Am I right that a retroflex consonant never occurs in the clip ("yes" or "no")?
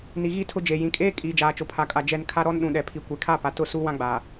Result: yes